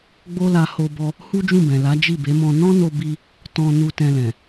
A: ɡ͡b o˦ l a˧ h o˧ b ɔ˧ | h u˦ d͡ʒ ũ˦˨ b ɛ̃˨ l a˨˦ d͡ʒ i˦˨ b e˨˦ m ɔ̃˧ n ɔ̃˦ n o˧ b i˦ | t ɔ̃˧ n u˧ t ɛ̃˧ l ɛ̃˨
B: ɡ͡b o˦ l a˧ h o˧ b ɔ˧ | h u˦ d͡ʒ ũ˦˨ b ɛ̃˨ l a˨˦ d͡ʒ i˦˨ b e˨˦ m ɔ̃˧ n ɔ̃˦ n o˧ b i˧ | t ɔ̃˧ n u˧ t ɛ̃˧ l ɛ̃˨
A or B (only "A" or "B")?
B